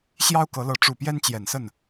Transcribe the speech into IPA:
ɕjɑ˦ʊ̯kɤ˨˦lɤ˨˦ ʈ͡ʂu˨˩pjɛ˦nt͡ɕjɛ˨˩nsə˥˨n

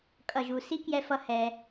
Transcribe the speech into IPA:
kʼʌ˨ʒu˨ si˦kjɛ˧fʌ˧ hɛ˧

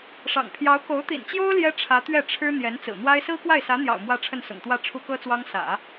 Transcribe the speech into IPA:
ʂɑ̰˨˩ŋpʰjɑ˧˥ʊ̯ ko˧˥ʊ̯t̪ḭ˨˩nt͡ɕjo˥ʊ̯ ljɛ˥ʈ͡ʂʰä˧˥ t̪ɥɛ˥˩ʈ͡ʂʰɻ̩˥ n̪jɛ˧˥nt͡sɹ̩˨˩n̪wa˥ɪ̯ sɹ̩˥kwa˥˩ɪ̯sä˧˥n̪jɑ̰˨˩ʊ̯ mwä˥˧ʈ͡ʂʰə˥˩nsʊ̰˨˩ŋt̪wä˥˩ ʈ͡ʂʰu˥kɤ˥t͡swɑ˥ŋ sä̰˨˩˦

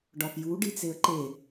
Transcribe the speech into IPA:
ɖɒfju ɖit͡seə̯ǃe

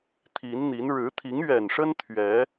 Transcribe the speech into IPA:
t̪ʰi˨˦nn̪i˨˦n ɻɻ̩˨˦t̪ʰi˨˦ŋɥɛ˨˩nʂə˦n t̪ʰɥɛ˨˦

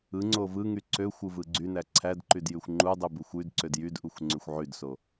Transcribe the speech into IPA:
ɯŋ͡ǀo vɯŋy ǀøxʷɯ vɯɡ͡ǀynæ ǀʰædǃyd jyxʷŋ͡ǃudˤy buxʷydǀød jydʔuxʷ ŋ͡ǀyxʷʕydso

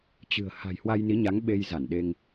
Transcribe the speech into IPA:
t͡ɕɨ̤˨˩ə̯ ha̤˨˩jhwa˧jni˨˦ɲa˨˦ŋ ɓe˧jza˧˩nɗe˧ŋ

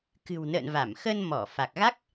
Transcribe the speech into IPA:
kɨ̤˨˩wnə̰˧˨n va˧˩mxə˧nmɔ˧˩ fa˨˩k̚ɣa˦˥k̚

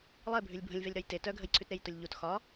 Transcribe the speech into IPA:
lˠebʱʉlʲ bʱə̃lʲvɛlʲɾɒj te tœɡʱəjǀʰʉtɾej tʊlʲʎut xɒ

